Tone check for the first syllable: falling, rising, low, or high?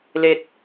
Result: high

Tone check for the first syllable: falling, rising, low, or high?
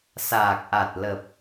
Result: low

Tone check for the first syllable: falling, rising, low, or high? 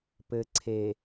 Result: low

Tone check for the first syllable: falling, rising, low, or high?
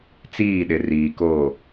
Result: falling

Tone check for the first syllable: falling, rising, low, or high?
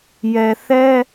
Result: low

